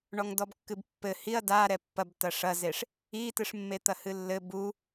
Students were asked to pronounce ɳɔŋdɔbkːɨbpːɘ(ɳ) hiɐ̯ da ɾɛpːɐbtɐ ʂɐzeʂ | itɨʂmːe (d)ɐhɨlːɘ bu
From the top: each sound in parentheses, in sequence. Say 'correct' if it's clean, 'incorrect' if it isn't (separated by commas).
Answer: incorrect, incorrect